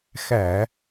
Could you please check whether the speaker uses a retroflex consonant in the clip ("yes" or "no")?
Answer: no